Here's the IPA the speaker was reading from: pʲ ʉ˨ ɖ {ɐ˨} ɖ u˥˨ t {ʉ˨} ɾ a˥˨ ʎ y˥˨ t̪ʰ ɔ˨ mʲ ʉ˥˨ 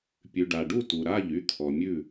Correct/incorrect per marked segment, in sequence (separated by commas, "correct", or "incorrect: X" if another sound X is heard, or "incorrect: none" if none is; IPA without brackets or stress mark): incorrect: a˨, incorrect: u˨